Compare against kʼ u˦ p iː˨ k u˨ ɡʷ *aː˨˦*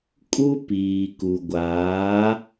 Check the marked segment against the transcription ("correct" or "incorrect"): correct